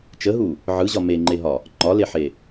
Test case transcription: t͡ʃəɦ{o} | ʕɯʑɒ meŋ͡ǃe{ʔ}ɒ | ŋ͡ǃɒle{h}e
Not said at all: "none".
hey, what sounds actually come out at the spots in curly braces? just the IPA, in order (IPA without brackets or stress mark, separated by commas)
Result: u, ɦ, ħ